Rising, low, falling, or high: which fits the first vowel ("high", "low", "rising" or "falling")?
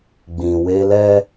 low